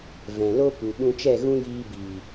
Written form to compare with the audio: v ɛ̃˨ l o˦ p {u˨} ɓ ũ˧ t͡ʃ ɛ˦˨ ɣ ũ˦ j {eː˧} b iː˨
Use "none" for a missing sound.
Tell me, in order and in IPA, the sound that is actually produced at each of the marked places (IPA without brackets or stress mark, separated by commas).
u˨, iː˧